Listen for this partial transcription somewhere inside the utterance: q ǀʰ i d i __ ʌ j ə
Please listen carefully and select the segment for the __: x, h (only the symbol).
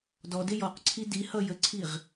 h